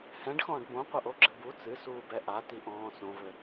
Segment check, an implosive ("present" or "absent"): absent